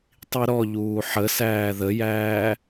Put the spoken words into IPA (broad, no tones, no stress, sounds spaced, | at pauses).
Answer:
tˤ i ɾ ɔ ʎ uː ħ ə s æː ð ə j æː